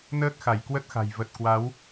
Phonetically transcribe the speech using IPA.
nəː˦˥k̚xa˧˩j kwə˦˥t̚xa̤˨˩j və˨˩t̚kwa˨˦w

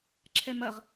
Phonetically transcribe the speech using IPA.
ǁʰɛmɐʁ

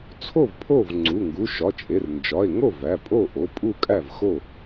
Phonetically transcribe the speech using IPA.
t͡sʰo˥˩v pʰo˥˩vŋ͡ǀu˩˧˩ ŋɡu˩˧˩ʃɒ˩˧˩t͡ʃʼe˩˧˩r nd͡ʒɒ˩˧˩e̯ŋo˥˩ væ˩˧˩pʼo˥˩ʔo˩˧˩ pʼu˥˩kʼæ˥˩vxo˥˩

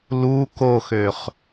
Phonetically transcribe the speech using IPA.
lu koxøχ

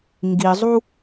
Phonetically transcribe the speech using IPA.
ŋɡizˤu

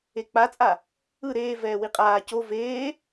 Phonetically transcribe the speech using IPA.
ek͡pat͡sʼa | ɯ ɾeː vɛːwiqʼaː co veː

